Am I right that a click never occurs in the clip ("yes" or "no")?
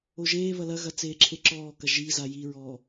no